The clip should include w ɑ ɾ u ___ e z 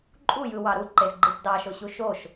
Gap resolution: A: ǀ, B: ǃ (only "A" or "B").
B